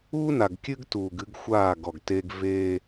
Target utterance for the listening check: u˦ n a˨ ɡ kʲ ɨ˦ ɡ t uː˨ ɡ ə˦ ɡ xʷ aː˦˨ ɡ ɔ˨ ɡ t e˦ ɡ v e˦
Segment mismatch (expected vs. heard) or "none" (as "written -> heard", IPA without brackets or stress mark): ə˦ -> ɨ˦